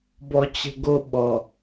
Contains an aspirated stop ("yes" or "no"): no